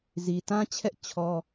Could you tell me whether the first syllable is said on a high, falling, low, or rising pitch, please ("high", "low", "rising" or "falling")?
low